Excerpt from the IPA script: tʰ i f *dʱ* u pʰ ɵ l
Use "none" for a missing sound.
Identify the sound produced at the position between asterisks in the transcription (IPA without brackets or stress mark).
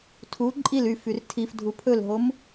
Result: dʱ